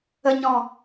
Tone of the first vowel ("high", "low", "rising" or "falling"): low